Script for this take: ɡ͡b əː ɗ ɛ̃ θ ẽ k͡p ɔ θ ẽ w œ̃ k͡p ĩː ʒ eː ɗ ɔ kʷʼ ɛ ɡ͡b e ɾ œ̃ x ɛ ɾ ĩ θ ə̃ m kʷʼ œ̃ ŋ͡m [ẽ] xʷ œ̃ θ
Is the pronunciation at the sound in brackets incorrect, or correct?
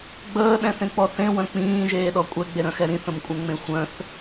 correct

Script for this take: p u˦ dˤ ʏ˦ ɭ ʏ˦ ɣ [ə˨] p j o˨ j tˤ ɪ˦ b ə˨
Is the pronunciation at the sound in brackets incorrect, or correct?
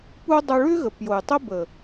correct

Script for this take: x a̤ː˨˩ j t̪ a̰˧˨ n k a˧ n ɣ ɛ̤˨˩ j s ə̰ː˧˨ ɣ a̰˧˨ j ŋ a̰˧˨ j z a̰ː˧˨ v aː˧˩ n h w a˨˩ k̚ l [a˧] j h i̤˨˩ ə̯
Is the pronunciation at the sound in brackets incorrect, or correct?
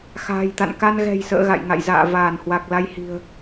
correct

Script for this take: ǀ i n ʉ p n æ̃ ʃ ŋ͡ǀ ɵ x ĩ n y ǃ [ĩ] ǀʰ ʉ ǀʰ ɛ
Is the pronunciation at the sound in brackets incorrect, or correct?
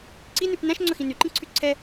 correct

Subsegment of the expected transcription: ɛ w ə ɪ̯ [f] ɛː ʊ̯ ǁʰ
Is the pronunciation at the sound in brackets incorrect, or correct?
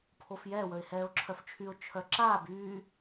incorrect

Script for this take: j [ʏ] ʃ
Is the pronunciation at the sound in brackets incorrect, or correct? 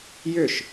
correct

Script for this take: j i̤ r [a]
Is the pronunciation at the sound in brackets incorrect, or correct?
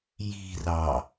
incorrect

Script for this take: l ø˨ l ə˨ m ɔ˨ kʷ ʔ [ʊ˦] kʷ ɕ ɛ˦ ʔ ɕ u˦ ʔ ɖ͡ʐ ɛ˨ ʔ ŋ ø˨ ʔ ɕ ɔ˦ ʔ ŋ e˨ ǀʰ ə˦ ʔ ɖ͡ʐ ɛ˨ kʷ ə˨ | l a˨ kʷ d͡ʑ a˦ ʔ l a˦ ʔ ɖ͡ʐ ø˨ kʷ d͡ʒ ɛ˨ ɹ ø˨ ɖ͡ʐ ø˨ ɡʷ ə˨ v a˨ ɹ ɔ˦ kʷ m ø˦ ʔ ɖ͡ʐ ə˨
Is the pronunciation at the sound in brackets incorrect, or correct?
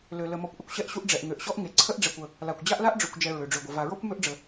incorrect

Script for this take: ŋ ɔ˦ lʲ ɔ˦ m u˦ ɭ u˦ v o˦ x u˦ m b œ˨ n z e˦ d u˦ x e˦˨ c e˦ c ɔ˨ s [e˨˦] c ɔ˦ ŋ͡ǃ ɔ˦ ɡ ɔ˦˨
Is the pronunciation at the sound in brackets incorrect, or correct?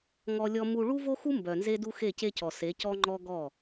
correct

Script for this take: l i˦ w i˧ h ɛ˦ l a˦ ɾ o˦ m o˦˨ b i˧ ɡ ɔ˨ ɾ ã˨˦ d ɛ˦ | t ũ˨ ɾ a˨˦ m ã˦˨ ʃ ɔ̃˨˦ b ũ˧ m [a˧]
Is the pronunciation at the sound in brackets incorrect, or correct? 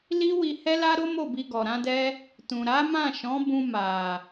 incorrect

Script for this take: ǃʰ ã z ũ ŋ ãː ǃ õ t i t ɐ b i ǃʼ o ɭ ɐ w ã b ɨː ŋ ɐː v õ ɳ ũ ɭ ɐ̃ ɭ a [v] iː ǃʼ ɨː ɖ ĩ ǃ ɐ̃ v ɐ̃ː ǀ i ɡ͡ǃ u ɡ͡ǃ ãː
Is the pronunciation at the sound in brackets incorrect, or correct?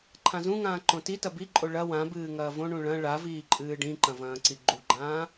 correct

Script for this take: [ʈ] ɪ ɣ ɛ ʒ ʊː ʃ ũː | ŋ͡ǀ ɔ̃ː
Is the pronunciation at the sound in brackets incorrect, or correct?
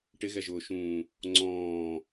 correct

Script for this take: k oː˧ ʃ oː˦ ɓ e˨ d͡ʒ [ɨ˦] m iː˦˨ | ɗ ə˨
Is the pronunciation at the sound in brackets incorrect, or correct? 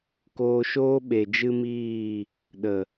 correct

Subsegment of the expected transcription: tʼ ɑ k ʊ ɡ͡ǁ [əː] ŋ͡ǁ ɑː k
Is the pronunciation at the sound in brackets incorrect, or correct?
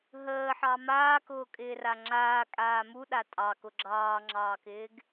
incorrect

